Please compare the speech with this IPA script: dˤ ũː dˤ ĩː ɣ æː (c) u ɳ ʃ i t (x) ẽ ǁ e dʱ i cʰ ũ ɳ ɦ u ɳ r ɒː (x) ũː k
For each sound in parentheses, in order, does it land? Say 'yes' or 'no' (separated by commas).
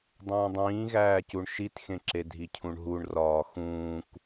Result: yes, yes, yes